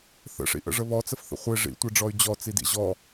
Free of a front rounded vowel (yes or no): no